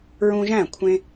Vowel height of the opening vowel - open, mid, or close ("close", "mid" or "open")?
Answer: close